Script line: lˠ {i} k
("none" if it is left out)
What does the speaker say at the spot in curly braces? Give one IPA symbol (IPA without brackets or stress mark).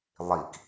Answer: i